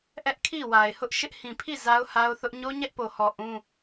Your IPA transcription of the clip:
ʔ ɛ˦ ʔ kʰ i˦˨ w a˨ ɪ̯ h ʊ˦ ʔ ʃ ɪ˦ ʔ h ĩ˨ pʰ i˦˨ z a˦ ʊ̯ h a˦ ʊ̯ θ ʊ˦ ʔ ɲ o˦ ɲ ɛ˦ ʔ p o˨ h ɔ˨ ʔ ũ˦

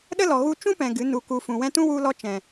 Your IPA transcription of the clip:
ɗ ə˦ l ɔ˨ ɣ u˧ t͡ʃ ũ˦ p ɛ̃˨ ɡ ɨ˨˦ n u˨ k u˨ f ũ˨ w ɛ̃˧ t ũ˦ w u˧ l ɔ˧ t͡ʃ ɛ̃˨

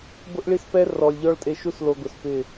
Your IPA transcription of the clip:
b ʊ˦ ʔ ɭ i˦ s p ɛ˦ r ɔ˨ lʲ ʎ ɔ˦ ɭ tʼ e˧ ʃ u˦ s l o˧ ɡ ʊ˨ s p ɪ˦˨

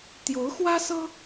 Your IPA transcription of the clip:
t̪ j o˧˥ ʊ̯ x w ä˥ s ɤ˥

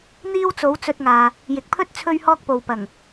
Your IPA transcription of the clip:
n̪ iː˥ w t͡s o˨˥ w t͡s ɵ˧ t̚ ŋ aː˨ | j ɪ˨ k̚ pʰ ɵ˥ t̚ t͡sʰ ɵ˥ ɥ h ɔː˥ k̚ p o˨ w p ɐ˨˩ ŋ

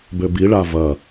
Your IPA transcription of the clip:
b ø b i ɭ a v ɐ

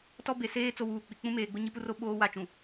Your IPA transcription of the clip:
t ɔ˦ b e˨ s eː˦ t͡s o˦ w uː˨ k͡p i˨ k͡p ũ˦ m eː˨ ɡ͡b ʊ˦ ɲ i˦ p u˦ r o˦ ɓ oː˦ w a˦ t͡ʃ ũ˨

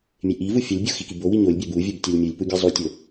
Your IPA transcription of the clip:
mʲ e ʔ i v u fʲ ɒ lʲ bʲ o x i k i b o w i ɲ o lʲ bʲ æ b u vʲ o b tʲ ɒ lʲ mʲ u lʲ p u ɡʲ e zˤ u tʲ o

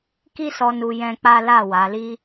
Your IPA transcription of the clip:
k i˦ s ɔ˧ n u˧ j ɛ̃˧ k͡p a˦ l a˦˨ w a˨˦ l i˦

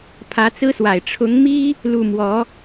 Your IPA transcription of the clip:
pʰ ä˧˥ t͡s ɹ̩˥ s w a˨˩ ɪ̯ ʈ͡ʂʰ ʊ˧˥ ŋ m i˥ | l u˥˩ m w ɔ˧˥

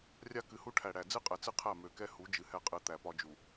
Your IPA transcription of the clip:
rʲ a˦ k ɨ˨˦ h u˦ ʈʰ æ˨ ɽ æ˨ d͡z ɨ˦ qʼ ɛ˨ t͡s ɨ˦ qʰ æ˦˨ m ø˨ k ɛ˦ h u˨˦ d͡ʒ ɨ˨ h ɛ˦ qʼ ɨ˨˦ t̪ æ˨ p ɒ˦ d͡ʒ u˨

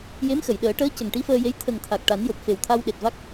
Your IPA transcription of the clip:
j e˧˥ m x ə˨˩˨ j ɗ əː˨˩˦ ʈ əː˧˥ c ə˨˩ ŋ ʈ i˧˥ f əː˧ j e˧˥ j t̪ʰ ə˨˩ ŋ t̪ʰ a˨˩ k̚ ʈ a˨˩˦ n j o˨˩ p̚ f e˨˩ w t̪ʰ a˧ w ɗ e˨˩ t̚ v a˦˥ k̚

